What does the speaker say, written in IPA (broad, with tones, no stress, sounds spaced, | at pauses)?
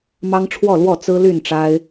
m ɑ˦ ŋ ʈ͡ʂʰ w ɔ˥˨ l w ɔ˥˨ t͡s ɹ̩˦ l y˥˨ n ʈ͡ʂ a˦ ɪ̯